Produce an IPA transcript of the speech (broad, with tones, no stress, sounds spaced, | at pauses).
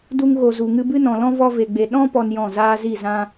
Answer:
d u˧ ŋ ɣ o˨ z u˨ ŋ ɨ˧ b ɨ˦ n ɔ̃˨ l ɔ̃˦ v ɔ˧ v e˨ ɡ͡b e˨ ɗ ɔ̃˦ p ɔ˦ n j ɔ̃˦˨ z aː˧ z i˦˨ z ã˧